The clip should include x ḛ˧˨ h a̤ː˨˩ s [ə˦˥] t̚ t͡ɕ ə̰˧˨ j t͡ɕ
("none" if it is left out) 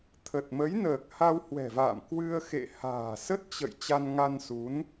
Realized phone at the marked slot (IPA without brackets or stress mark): ə˦˥